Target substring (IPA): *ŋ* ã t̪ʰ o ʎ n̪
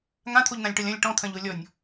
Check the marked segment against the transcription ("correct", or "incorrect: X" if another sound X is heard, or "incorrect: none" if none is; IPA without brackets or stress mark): correct